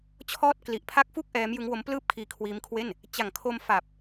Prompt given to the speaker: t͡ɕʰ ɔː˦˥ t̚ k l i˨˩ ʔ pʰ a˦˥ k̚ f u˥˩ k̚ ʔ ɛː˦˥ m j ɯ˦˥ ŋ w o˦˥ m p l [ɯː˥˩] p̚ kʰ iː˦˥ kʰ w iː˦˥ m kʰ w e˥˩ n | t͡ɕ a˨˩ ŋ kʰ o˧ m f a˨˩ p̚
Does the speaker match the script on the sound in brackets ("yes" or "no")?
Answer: yes